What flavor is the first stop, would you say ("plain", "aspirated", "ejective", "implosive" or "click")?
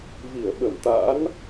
implosive